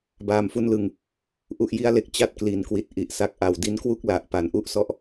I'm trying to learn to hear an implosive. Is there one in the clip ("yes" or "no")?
no